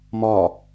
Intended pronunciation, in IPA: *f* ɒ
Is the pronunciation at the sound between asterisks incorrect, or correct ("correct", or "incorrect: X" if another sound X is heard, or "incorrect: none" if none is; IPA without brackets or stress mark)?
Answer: incorrect: m